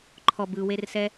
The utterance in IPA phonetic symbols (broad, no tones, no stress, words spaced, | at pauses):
ǃʰɔb ɯwersɛ